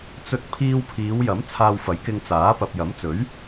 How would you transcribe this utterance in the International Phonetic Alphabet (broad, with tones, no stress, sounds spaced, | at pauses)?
t͡s ɵ˧ t̚ pʰ iː˧ w pʰ iː˨˧ w j ɐ˨˥ m t͡sʰ aː˧ w f ɐ˨˥ j k ɪ˧ ŋ t͡s aː˨˥ p ɐ˨ p̚ j ɐ˨˥ m t͡s ɵ˨˥ ɥ